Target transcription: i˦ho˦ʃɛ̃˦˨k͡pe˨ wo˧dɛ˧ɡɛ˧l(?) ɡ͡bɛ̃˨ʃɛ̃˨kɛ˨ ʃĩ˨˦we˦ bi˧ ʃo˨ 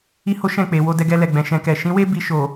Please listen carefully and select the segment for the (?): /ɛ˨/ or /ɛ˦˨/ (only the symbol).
ɛ˨